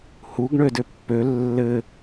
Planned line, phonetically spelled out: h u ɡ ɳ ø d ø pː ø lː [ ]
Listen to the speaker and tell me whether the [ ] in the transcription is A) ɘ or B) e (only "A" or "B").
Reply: A